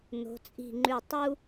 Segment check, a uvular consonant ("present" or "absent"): absent